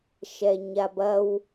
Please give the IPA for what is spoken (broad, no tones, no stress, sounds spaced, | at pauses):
ʃ ɛ ɲ a b ɐ w